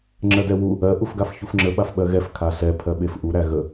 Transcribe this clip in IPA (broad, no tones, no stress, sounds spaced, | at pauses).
ŋ͡ǁ ɜ d ɛ w u | ɜ ʔ u f ɡ a f ç u f ŋ͡ǁ ə ɓ a f ɓ ɜ ɣ ɛ f kʰ a ɬ ɛ pʰ ɜ ɓ e f ʔ u ɾ æ ɣ ə